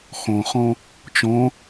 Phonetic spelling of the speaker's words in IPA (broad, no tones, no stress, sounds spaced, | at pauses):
x ɔ̃ χ ɔ̃ | t͡ʃ ɔ̃